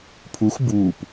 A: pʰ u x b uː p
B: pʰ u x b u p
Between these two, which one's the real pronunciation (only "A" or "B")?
A